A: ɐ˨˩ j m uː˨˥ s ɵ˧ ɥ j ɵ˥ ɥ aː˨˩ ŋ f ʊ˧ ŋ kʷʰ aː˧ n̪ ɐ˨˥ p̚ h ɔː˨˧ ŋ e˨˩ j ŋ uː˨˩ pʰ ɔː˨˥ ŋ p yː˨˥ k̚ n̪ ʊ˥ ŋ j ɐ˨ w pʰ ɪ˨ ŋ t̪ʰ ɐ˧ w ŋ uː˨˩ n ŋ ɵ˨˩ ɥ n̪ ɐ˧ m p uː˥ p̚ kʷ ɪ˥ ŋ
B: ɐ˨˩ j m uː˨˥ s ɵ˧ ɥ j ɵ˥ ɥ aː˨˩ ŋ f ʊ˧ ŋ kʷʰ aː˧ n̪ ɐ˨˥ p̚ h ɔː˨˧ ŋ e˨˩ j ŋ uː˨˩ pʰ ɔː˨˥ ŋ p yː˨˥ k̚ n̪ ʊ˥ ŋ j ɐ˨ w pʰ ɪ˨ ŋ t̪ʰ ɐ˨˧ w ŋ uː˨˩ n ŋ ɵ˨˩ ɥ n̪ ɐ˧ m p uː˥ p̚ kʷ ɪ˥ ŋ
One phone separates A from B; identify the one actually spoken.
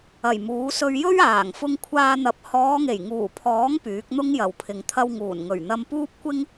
A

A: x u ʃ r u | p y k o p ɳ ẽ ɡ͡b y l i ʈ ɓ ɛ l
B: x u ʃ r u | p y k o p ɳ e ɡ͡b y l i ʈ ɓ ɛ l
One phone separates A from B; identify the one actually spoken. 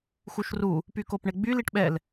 B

